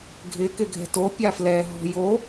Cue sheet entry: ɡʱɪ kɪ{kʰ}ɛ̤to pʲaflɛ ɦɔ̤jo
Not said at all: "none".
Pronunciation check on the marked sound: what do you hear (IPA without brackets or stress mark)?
ɡʱ